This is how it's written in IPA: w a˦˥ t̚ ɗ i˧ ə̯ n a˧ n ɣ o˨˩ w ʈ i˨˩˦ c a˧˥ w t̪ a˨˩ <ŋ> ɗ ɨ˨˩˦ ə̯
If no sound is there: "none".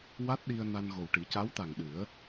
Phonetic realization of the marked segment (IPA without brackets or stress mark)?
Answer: ŋ